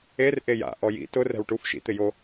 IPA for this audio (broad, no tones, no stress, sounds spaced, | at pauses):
e r ʔ e j a̰ ʔ ɔ j ḭ t ʊ r ɛ̤ w ʈ u f ʃ ḭ t̪ ɪ j o